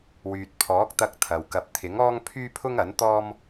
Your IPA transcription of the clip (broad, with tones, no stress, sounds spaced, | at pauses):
w yː˨ t̚ pʰ ɔː˨˥ k̚ t̪ ɐ˧ k̚ t̪ʰ ɐ˨ w k ɐ˨ p̚ t̪ʰ ɪ˨˥ ŋ ɔː˥ ŋ pʰ yː˥ pʰ ʊ˥ ŋ ɐ˨˥ n t̪ ɔː˥ m